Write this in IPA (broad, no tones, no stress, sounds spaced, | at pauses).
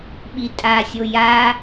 ɓ i tʼ a sʲ o j a